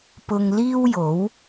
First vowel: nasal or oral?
oral